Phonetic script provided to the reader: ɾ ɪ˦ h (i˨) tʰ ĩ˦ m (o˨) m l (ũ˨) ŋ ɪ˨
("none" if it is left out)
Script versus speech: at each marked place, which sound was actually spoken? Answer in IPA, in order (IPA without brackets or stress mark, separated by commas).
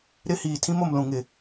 iː˨, o˨, ũ˨